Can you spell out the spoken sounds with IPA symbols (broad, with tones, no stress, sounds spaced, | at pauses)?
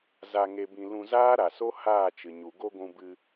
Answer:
z a˧ ŋ e˧ b ĩ˧ l ũ˧ z aː˦ ɾ a˨ s o˦ h aː˦˨ t͡ʃ ɨ˨ ɲ u˨ ɡ o˦ ɡʷ ũ˧ b ɨ˧